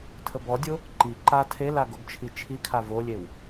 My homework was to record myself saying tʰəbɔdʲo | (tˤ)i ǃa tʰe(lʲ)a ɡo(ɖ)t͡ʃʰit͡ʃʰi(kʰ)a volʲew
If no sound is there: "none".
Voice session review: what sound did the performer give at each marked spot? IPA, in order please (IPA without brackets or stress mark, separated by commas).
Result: ǃ, l, ɡ, kʰ